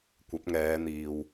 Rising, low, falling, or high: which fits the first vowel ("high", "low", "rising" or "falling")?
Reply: rising